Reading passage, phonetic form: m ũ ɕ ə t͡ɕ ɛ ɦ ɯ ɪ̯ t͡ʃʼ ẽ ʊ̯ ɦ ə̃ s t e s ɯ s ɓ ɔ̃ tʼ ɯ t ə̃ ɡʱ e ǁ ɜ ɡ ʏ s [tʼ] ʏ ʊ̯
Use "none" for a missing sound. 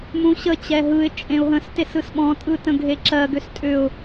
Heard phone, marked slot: tʼ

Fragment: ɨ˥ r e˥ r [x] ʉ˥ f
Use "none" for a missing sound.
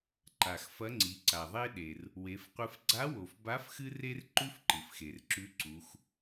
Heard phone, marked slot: ǃ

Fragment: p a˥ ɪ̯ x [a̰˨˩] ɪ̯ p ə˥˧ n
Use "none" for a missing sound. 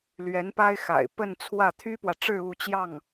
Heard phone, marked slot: a̰˨˩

